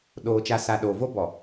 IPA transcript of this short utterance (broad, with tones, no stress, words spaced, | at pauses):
ɗoː˨t͡ʃa˨sa˨ ɗoː˨vo˦bɔ˨